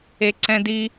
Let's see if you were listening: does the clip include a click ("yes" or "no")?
yes